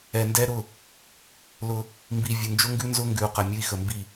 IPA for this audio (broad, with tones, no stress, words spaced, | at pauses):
ɛ˨ndɛ˦ɾʊ˦˨ | lʊ˦ | mbi˨ vʲʊ˨nd͡ʒʊ˦ ŋɡʉ˦nzʊ˦ŋɡʉ˨u̯ qə˨ mʲʊ˦i̯xə˨mbi˦˨